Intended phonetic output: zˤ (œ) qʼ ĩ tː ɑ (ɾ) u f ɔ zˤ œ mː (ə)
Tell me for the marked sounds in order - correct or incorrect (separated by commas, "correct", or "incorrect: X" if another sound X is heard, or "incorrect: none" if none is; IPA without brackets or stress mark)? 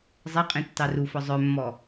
incorrect: ɛ, incorrect: r, incorrect: ɔ